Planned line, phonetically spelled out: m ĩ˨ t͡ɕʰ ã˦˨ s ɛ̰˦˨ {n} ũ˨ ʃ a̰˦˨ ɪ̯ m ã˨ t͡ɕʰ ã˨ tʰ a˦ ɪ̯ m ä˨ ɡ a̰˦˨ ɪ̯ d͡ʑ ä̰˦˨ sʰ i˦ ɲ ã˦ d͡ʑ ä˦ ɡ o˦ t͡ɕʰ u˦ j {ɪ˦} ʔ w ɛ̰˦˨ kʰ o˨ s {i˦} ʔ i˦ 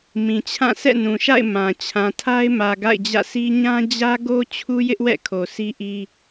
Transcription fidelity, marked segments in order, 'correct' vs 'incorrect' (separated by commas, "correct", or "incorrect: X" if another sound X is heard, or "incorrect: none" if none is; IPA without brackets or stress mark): correct, correct, correct